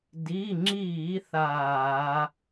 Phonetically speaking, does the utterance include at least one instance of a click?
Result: yes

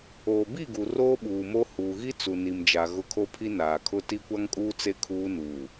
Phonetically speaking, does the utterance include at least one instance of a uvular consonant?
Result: no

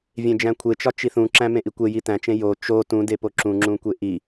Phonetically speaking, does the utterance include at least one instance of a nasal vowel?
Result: yes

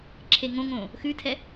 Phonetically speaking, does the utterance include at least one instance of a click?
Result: yes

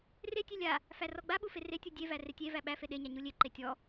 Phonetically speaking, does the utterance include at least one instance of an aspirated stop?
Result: no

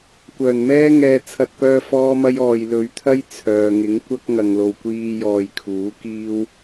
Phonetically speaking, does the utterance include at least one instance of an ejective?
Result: no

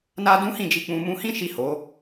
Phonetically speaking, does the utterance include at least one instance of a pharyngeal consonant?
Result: no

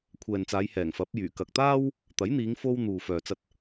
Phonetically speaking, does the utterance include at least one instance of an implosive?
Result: no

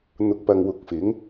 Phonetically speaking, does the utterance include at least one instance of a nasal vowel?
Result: no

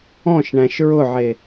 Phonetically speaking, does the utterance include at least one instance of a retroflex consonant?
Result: yes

